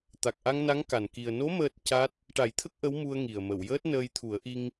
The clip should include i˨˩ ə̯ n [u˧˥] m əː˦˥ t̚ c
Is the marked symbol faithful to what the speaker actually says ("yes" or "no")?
no